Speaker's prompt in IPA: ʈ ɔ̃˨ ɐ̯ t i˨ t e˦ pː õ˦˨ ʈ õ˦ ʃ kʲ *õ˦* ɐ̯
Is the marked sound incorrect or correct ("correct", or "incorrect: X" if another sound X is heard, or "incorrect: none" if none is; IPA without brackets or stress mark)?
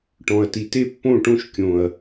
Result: incorrect: õ˨